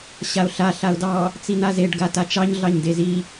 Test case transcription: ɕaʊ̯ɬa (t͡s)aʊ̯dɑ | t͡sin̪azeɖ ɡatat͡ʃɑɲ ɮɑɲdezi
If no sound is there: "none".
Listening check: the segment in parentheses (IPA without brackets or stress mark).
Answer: ɬ